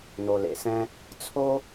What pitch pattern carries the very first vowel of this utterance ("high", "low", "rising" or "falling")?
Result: low